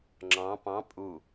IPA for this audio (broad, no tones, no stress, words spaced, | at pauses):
ŋ͡ǁɑ̃ pɑ̃ pʼu